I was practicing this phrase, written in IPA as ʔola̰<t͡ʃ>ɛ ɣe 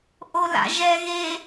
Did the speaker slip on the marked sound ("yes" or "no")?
yes